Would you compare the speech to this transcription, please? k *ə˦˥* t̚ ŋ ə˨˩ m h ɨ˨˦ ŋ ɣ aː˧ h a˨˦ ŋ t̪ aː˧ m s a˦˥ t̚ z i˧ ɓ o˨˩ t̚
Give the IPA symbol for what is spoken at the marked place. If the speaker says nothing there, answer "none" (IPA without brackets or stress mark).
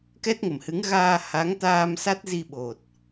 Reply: ɛ˦˥